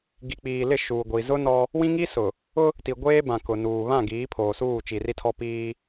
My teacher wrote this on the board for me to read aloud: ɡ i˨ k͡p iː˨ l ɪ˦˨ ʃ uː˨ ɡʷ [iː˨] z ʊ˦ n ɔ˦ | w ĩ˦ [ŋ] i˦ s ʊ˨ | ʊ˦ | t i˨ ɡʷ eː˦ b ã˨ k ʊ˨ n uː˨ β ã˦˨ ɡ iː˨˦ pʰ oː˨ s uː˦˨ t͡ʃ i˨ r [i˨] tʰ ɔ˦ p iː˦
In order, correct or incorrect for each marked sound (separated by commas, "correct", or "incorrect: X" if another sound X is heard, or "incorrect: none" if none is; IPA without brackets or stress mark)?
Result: incorrect: i˨, correct, incorrect: i˦